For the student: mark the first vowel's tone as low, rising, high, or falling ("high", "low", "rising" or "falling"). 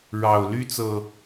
low